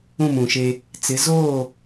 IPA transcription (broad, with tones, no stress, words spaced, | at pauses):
ũ˦˨mũ˨ʃe˦ | t͡sɪ˨˦ zoː˦˨